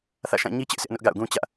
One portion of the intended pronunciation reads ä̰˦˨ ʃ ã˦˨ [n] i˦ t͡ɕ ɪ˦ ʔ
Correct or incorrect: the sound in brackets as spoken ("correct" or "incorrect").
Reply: incorrect